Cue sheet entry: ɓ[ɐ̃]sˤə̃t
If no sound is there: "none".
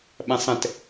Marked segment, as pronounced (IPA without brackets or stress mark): ɐ̃